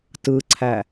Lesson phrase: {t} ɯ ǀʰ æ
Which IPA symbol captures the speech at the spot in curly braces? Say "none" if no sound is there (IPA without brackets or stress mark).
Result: t